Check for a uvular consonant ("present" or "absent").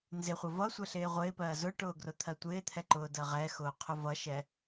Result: present